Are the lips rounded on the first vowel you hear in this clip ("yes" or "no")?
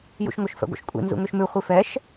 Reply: yes